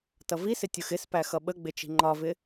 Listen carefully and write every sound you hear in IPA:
t ʌ v i s ɪ tʲ ʊ x ɪ s p æ x ʌ ɓ ə ɡ͡b ɪ t͡ʃ i̤ ŋ͡ǃ ɒ v ɪ

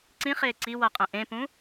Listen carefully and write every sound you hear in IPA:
ǀ ĩ χ eː ǀ i w ʌ qʼ ɛ̃ ʔ ẽ p ũ

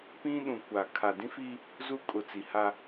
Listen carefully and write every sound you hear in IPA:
p ĩ˦ ɗ ũ˨ kʷ a˨ kʰ a˨ d ĩ˦ f i˦ | z u˦ kʼ ʊ˨ t͡s i˨ h a˦

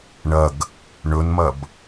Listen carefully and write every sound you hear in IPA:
ɳ ɐ ɡ | ɳ ɵ n m ɐ b

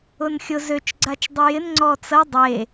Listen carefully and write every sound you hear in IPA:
ʊ n xʲ ʊ z ø t͡ʃ ɡ͡ǀ a t͡ʃ dˤ ə j ɪ n ŋ͡ǀ ɔ t͡s ɐ dˤ e

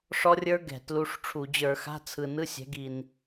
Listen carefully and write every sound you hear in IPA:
ʂ ɔ˦˥ rʲ ə˞˦˥ ɡ ɛ̤˧˩˧ t l u˧˥˧ ʂ ʈ͡ʂʰ u˧˩˧ d͡ʑ ə˞˧˩˧ x a̤˧˥˧ t͡sʰ ɯ˨˩ n ɯ˧˥˧ sʲ ɛ̤˩˥ ɡ i˨˩ n

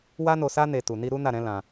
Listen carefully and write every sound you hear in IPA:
w a˦ n o˧ s a˦ n e˧ t u˨ n i˧ ɾ u˦ n a˦˨ ɾ ɛ̃˨˦ l ã˧

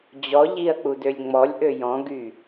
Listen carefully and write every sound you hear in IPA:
d͡ʑ ɔ ʎ i ɐ̯ k͡p u d ø lʲ ŋ͡m ɔ lʲ ʔ ø j ɔ̃ ɡ y

